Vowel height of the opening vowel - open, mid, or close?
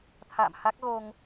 open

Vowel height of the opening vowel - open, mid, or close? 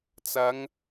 open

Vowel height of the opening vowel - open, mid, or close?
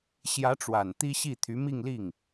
open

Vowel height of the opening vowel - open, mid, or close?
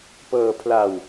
mid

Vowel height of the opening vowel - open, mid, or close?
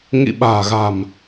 close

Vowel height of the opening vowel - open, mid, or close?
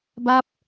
open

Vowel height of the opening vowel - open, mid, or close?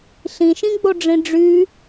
close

